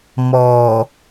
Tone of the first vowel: low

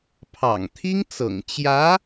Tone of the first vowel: low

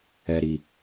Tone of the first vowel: low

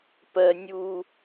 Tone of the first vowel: low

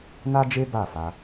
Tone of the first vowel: high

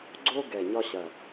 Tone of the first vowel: high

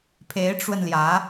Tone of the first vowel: rising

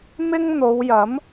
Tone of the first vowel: high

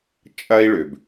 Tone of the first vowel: high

